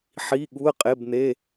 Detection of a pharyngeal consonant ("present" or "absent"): present